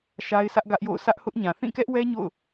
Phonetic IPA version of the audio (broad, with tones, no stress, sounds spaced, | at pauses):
ʃ a˦ ɪ̯ sʰ ä˦ ʔ ɡ ä˦ ʔ j o̰˦˨ ʊ̯ sʰ ä˦ ʔ h ʊ˦ ʔ ɲ ã˨ θ ĩ˦˨ k ɛ˦ ʔ w ɛ˦ ɲ o̰˦˨ ʊ̯